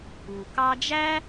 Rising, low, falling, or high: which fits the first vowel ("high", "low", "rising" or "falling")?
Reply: low